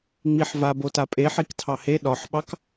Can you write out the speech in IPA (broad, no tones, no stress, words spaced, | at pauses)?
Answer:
ŋ͡miħva botapʼe ħiktʰɑhe ɗɒħɓɑk